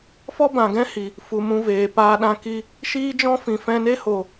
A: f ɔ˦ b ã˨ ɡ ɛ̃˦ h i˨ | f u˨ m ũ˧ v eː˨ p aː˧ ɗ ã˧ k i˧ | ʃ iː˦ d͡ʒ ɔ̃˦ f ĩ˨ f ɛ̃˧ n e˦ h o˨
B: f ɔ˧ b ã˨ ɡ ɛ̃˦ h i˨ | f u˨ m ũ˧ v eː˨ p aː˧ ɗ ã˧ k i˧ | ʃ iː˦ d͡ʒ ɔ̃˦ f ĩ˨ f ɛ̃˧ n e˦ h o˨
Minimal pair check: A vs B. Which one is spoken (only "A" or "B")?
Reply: A